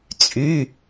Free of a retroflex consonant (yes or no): yes